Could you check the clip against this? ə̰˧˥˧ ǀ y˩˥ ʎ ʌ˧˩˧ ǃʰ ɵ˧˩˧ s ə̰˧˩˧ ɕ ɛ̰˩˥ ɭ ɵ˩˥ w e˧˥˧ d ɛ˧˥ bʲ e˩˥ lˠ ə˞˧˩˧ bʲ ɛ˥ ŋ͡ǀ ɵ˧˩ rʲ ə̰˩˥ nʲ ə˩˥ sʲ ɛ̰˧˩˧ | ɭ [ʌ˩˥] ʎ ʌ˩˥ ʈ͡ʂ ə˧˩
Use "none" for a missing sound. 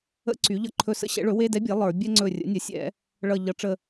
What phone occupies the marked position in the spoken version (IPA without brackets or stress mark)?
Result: ʌ˧˩